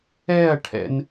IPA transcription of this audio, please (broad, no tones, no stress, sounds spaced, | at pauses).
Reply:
ɛ ɐ̯ ʈʰ ɛ̰ n